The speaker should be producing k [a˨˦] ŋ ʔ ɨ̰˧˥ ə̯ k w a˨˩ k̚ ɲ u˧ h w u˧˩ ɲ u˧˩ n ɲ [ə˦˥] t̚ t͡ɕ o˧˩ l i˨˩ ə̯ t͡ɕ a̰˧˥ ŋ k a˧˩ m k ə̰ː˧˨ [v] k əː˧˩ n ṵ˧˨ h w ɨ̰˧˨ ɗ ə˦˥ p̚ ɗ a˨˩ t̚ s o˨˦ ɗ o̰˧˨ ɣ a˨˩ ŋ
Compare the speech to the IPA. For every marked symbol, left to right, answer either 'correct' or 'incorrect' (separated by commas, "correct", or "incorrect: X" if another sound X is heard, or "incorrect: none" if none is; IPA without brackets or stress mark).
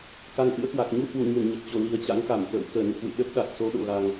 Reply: correct, incorrect: ə˨˩, incorrect: w